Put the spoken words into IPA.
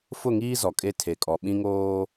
f ʊ˦˨ ŋ iː˦ z ɔ˨ kʼ e˦ tʰ e˨ kʼ ɔ˨ ɓ ĩ˦ ŋ oː˦

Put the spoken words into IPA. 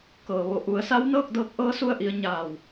k ɤː˩ ʋ o˧˩ ʔ u˩˧ ə̯ s a˧˥ w n ɤː˥˨ k̚ d ɤː˧ k̚ ʔ ɤː˧˥ s u˧ ə̯ ʔ i˩˧ ə̯ ɲ aː˧˩ w

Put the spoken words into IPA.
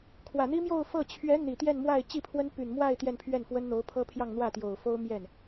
kʰ w ä˨˩ n̪ i˥ m j o˥˧ ʊ̯ f ɤ˥˩ t͡ɕʰ ɥ ɛ˧˥ n̪ i˨˩ t̪ j ɛ˥˧ n m w a˥˧ ɪ̯ t͡ɕ i˥˩ pʰ w ə˥ n p y˨˩ n m w a˥˧ ɪ̯ t̪ j ɛ˥˧ n pʰ ɥ ɛ˥˩ n f w ə˥ n n̪ o˧˥ ʊ̯ pʰ ɤ˥ pʰ j ɑ˥˧ ŋ n̪ w ä˥˩ t̪ j o˨˩ ʊ̯ f o˥ ʊ̯ m j ɛ˥˩ n

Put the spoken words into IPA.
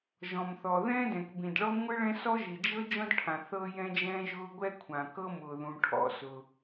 ʒ ɔ̃˩ m θ ɔ˩ ð ɛ̃ː˥ d ɛ̃˩ k b ĩ˩ d ɭ ɔ˥ ŋʷ ɨ˥ ɭ ɛ̃˥ s ɔ˥ ʒ i˩ d͡ʒ ɤ˥ d͡ʒ ɔ̃˥ d ʈʰ ã˩ θ ɤː˥ j ɛ̃˥ d͡ʒ ɛ̃ː˥ ʒ ʊː˥ ɡʷ ɛ˥ kʷʰ ã˩ k ɤ˥ m ʊː˩ ð ũ˩ ʈʰ ɔ̰˥ s ʊ˩

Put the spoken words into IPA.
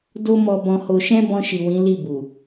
d o˦ m ɔ˧ b ɔ̃˧ h o˧ ʃ ɛ̃˦ b ɔ̃˧ ʃ i˨ w ĩ˨˦ l i˦˨ b u˨

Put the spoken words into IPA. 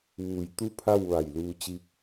ʋ uː˧˩ j t̪ u˥˨ pʰ a˥˨ w ʋ a˧˩ j l uː˧ t͡ɕ i˧˥ k̚

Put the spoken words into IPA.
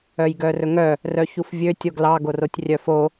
œ j ɡ œ r ɵ ŋ œ | r œ ç u f vʲ ø tʲ o ɡ l ɑ ɡ o r o tʲ rʲ œ f o

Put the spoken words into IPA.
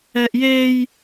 ɛ ʔ j e j

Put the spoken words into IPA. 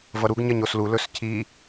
v ʌ ɾ u ɡ ɲ ɜ ɲ o s l u l ɵ s cʰ i

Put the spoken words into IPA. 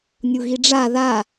nʲ u ɣ i ɖ͡ʐ a ð a

